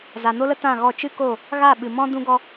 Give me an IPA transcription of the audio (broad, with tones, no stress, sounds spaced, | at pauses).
z a˨ n o˦ l ə˦ t ã˦˨ ɣ ɔ˦˨ t͡ʃ ɨ˦ k o˦˨ | ɣ a˦˨ ɓ ɨ˨ m ɔ̃˦ d ũ˦ ɡ ɔ˧